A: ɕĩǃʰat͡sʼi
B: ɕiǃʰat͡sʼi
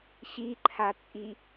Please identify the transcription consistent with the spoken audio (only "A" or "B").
B